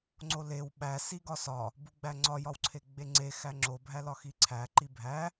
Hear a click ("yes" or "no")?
yes